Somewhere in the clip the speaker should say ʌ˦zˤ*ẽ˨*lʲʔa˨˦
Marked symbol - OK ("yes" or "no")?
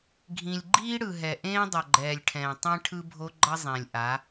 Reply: yes